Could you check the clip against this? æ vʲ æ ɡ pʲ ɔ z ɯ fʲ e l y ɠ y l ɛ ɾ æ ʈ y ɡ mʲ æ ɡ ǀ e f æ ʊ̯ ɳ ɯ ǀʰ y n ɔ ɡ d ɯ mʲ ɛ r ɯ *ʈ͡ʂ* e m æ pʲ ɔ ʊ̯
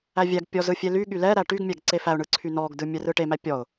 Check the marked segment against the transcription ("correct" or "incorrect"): incorrect